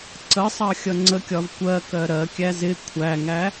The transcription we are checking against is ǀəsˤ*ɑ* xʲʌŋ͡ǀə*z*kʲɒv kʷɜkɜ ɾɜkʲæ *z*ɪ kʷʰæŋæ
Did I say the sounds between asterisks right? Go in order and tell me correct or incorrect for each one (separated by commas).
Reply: correct, incorrect, correct